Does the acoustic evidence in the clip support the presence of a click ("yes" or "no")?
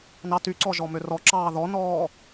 yes